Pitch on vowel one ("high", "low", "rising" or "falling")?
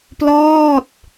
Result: falling